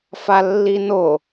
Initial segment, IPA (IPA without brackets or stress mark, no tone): f